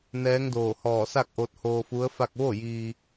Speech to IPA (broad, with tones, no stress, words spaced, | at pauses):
nɛː˧˥ŋdoː˧˩ hɔː˧˩sa˥˨k̚ʔo˧t̚ hoː˧fu˧˥ə̯fa˥˨k̚ ʋo˥˨jiː˧